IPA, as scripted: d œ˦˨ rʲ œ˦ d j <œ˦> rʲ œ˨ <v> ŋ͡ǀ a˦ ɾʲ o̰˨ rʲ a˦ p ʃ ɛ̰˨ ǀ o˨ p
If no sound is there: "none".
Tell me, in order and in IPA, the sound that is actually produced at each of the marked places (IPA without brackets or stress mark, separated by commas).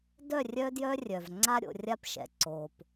œ˦, v